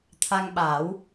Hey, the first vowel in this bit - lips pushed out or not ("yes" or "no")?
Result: no